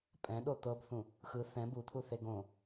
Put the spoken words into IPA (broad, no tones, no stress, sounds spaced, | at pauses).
pʼ ɛ̃ ɗ o t̪ ɤ b θ ũ | x ɯ θ ɛ̃ b u t̪ʰ u θ e ɡ õ